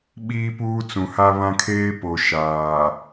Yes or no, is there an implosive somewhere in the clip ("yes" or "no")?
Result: yes